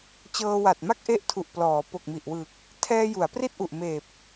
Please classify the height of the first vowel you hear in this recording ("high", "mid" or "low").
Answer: mid